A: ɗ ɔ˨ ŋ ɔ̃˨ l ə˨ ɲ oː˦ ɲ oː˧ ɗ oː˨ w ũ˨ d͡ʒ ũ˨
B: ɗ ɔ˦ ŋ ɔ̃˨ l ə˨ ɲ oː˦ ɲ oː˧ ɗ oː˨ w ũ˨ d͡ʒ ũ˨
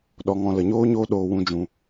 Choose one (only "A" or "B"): A